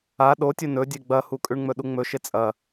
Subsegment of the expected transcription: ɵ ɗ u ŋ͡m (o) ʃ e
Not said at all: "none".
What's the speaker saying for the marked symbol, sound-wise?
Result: ɵ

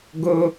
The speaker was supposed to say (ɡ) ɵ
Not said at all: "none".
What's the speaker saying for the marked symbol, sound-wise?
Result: ɡ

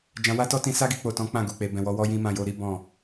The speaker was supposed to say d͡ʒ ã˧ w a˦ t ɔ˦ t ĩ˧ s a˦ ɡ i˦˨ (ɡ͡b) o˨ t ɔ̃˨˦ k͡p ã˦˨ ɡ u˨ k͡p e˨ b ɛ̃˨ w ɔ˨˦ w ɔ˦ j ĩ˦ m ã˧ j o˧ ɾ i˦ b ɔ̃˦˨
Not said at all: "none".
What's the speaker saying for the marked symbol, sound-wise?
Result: k͡p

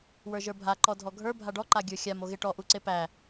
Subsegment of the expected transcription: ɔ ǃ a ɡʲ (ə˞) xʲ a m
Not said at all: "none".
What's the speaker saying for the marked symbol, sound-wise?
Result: ə˞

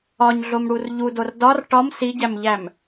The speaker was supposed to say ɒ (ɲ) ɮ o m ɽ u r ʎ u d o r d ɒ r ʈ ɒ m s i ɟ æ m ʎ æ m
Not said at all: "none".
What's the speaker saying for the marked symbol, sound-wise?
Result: ɲ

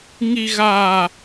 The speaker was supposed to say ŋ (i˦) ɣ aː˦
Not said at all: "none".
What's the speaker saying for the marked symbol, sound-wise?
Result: i˦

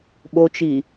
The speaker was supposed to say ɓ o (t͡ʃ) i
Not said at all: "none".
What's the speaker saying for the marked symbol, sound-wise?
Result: t͡ʃ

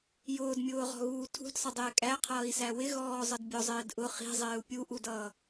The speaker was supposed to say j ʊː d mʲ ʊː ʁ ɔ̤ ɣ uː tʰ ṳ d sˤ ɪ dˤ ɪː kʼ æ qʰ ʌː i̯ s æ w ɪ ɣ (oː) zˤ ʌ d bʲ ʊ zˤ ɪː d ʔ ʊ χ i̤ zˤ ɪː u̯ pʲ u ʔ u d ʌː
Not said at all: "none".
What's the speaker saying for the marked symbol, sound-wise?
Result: ɔː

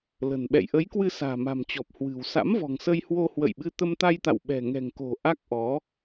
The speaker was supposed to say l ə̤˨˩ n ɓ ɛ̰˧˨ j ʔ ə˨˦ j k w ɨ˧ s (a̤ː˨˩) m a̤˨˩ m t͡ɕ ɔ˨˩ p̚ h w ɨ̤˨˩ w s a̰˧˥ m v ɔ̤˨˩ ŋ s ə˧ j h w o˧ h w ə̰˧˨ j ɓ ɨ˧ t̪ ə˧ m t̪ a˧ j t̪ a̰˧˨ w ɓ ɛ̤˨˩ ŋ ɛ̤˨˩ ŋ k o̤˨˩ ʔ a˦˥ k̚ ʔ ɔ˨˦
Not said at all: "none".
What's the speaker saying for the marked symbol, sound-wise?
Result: a̤ː˨˩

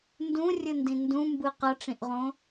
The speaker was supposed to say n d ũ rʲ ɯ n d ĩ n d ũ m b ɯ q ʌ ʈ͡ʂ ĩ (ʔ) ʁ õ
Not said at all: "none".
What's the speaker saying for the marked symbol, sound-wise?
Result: ʔ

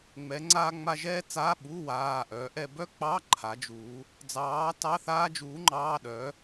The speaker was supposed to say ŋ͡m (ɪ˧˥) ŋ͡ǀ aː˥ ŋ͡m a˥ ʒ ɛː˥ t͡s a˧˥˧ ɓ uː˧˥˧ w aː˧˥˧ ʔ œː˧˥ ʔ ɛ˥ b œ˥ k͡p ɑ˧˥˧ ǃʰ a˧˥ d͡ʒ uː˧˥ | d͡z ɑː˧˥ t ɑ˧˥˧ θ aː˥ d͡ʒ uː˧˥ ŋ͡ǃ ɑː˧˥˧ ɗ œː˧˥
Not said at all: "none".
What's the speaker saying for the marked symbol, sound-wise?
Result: ɛ˧˥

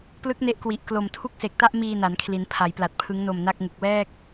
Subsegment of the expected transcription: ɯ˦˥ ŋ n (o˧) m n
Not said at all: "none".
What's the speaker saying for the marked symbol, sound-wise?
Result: o˧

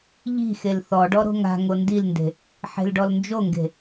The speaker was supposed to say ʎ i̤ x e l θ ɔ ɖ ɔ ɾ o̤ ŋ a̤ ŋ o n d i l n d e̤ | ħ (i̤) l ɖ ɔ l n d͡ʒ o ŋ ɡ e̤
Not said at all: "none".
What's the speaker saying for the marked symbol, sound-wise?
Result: e̤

